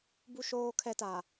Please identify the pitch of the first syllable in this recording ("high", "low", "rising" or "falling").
high